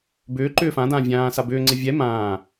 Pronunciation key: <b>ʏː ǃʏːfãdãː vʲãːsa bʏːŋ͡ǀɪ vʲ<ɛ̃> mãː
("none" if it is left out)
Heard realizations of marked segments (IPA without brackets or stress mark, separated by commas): b, ɛ